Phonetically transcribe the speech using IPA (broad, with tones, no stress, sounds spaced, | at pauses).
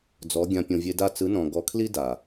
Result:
d͡z ɔ˨˦ ɡʲ ã˧ pʲ õ˨ vʲ e˧ d a˦˨ t͡s ɯ˨˦ n ɔ̃˨ ɡ ɔ˨˦ kʰ l i˦ d a˨